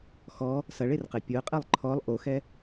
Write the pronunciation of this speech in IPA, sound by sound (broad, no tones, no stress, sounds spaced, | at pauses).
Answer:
x ɔ | s ɐ ɭ e r q e pʲ o ə̯ qʼ ɛ lˠ ǃʰ ɔ lˠ ʔ o x ɛ